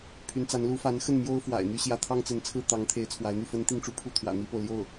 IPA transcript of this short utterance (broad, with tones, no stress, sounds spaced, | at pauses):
pʰ y˧˥ n t͡s a˧˥ n l u˧˥ f a˧˥ n x ə˥˩ n m j o˥ ʊ̯ f w a̰˨˩ ɪ̯ n̪ y˥˧ ɕ j ä˥˩ t̪ʰ ɑ˥ ŋ t͡s ə˧˥ n t͡sʰ ɹ̩˥˩ t̪ ɑ˧˥ ŋ t̪ʰ e˧˥ ɪ̯ t͡sʰ w a˧˥ ɪ̯ n̪ y˥˩ f ə˥ n t̪ i˥˧ ŋ ʈ͡ʂ u˥˧ pʰ u˥˩ t̪ʰ w ä̰˨˩ n̪ i˥ p o˨ ʊ̯ l j o˥˩ ʊ̯